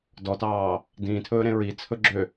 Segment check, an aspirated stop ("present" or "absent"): present